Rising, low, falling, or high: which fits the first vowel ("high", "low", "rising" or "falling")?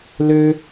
high